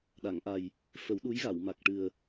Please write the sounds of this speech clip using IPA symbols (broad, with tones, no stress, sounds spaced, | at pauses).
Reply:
ɗ a˨˩˨ ŋ ʔ a˨˩ j | f ə˨˩˦ w ɗ u˧˥ j ɣ a˨˩˨ w m a˨˩ k̚ ʈ ɨ˨˩ ə̯